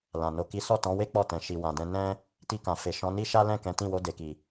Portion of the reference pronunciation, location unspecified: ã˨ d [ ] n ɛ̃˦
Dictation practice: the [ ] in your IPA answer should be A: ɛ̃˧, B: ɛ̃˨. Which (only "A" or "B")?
A